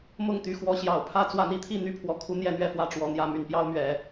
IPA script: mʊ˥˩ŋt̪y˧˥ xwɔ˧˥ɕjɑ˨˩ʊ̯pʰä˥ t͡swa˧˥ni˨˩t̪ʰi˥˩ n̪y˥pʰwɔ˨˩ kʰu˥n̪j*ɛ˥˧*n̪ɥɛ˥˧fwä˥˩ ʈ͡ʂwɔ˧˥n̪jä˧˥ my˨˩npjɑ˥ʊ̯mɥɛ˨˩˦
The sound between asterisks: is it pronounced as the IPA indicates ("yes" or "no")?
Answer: yes